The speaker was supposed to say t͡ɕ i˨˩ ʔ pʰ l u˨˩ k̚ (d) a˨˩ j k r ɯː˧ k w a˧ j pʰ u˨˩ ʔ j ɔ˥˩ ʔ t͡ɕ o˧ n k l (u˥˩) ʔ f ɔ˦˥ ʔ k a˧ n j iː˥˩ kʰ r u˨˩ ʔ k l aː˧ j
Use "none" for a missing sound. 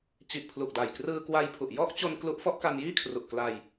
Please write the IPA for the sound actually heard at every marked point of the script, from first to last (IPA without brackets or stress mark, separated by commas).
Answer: d, u˦˥